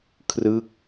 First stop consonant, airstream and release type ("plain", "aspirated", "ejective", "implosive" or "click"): aspirated